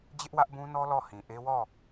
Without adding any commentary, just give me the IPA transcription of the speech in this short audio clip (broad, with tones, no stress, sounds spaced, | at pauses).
d͡ʑ ɪ˦ ʔ w ä˦ ʔ b ũ˦ n ɔ˦ l ɔ˦˨ h ĩ˨ ʔ e˦ w ɔ˦˨